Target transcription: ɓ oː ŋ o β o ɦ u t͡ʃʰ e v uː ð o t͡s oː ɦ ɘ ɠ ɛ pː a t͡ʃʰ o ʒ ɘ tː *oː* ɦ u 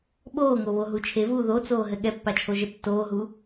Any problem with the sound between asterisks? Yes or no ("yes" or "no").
no